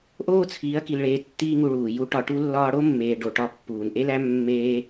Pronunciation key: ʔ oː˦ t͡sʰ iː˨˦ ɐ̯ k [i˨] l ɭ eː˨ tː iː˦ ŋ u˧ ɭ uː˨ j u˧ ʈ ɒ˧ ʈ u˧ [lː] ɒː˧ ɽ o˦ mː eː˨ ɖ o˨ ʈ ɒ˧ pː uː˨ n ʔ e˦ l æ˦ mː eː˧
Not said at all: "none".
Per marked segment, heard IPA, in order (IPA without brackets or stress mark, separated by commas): i˨, lː